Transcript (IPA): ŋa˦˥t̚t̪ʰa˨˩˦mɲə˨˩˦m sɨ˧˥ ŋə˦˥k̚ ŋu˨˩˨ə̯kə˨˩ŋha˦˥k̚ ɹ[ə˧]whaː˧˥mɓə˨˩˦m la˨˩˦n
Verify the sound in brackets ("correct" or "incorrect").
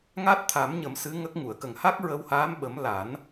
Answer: correct